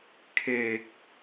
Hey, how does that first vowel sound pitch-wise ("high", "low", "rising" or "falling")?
low